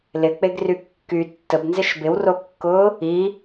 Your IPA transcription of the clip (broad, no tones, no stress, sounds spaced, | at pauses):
l ɪ k͡p e ɡ r y kː y tː ə b n z ɪ ʃ b ɪ w r o kː ʊː | i